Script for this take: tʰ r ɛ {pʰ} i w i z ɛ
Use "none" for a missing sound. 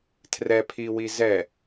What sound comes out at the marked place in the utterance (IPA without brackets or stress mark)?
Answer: pʰ